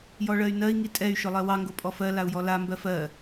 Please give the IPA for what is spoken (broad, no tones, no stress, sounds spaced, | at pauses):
j ɔ ɭ ɜ y̯ n ɜ i̯ ŋ i tʼ ɛ y̯ ʃ ʊ lˠ ɜ w ɑ ŋ ɡ o pʼ ɔ f ɜ l a u̯ j ɔ l a m b ɜ f ɜ